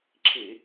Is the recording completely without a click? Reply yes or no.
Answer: no